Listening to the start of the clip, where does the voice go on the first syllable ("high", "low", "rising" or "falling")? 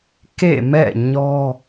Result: falling